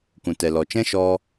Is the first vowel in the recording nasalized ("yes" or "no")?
yes